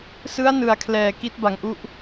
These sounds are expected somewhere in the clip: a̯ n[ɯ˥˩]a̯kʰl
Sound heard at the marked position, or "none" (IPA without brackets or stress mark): ɯ˩˦